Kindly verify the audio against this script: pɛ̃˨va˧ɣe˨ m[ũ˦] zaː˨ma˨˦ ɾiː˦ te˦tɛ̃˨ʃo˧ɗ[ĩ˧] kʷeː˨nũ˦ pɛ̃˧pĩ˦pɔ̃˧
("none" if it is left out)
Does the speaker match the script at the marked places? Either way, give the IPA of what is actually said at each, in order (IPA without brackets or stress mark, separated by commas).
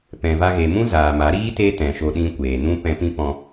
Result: ũ˦, ĩ˧